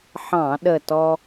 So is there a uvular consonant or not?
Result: no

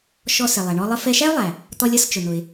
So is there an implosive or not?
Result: no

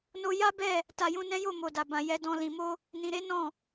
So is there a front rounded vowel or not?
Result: no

